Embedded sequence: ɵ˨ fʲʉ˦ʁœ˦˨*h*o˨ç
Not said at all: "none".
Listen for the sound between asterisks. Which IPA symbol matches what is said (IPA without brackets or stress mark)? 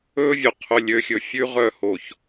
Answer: h